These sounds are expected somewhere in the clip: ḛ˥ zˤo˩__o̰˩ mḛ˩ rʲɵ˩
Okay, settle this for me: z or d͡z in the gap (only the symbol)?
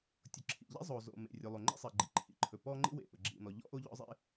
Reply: z